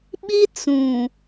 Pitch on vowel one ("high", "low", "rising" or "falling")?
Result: high